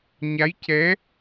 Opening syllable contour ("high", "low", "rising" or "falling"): rising